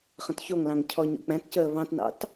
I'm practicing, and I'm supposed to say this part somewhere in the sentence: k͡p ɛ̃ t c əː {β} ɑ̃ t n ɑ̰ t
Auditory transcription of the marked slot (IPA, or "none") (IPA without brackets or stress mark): β